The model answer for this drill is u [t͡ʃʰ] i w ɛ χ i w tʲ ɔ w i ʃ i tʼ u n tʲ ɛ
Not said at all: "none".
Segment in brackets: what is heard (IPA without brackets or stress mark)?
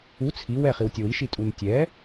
t͡sʰ